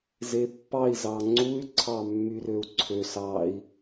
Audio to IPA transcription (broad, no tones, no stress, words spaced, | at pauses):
zepːɑi̯ zɑŋ͡ǀuy̯ ǀʰɑmːyrøu̯ǀʰøs ɑi̯